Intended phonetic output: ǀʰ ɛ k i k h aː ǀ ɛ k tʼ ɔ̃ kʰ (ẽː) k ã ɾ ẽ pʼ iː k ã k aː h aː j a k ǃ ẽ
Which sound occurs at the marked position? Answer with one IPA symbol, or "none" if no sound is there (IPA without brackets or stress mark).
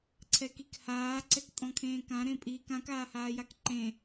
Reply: ẽː